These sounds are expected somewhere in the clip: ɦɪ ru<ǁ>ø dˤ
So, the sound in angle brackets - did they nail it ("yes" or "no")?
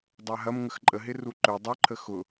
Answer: no